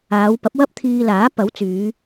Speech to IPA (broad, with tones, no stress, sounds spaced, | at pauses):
aː˨˧ w p ɐ˨˥ p̚ w ɐ˥ p̚ t̪ʰ iː˧ l aː˨˥ p ɐ˨˥ w t͡s yː˨˧